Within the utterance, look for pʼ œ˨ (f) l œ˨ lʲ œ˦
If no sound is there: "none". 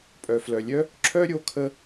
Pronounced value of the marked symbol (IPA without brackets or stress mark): f